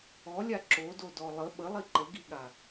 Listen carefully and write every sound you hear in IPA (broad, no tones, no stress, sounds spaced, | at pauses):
ɔ lʲ a ǁ o d o d ɔ lˠ ə ɓ ə lˠ i ǃ ə ɡ i ɠ a